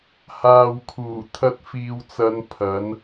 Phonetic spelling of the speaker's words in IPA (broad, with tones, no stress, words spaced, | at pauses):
haː˨wkʰuː˨˩ t̪ʰɐ˧t̚fiː˨wt͡sɐ˨˧n pʰɐ˨˥n